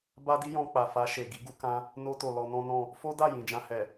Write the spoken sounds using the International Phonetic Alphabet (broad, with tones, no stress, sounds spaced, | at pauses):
b a˦ d i˦ j ɔ̃˧ k͡p a˨ f a˧ ʃ e˨ ɡ i˨˦ ɡ u˧ k ã˧ | n o˧ t o˨ l ɔ˧ n ɔ̃˦ n ɔ̃˦˨ | f o˦ d a˦˨ j ĩ˨ d͡ʒ ã˧ h ɛ˨